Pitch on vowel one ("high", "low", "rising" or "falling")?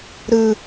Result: low